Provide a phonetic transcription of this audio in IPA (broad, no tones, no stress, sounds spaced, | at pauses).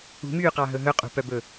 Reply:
ṳ m yː q ɑ ɦ ɵ ɦ ɵ qʼ ṳ p œ b ɵ